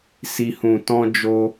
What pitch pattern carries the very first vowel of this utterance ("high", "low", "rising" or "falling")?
low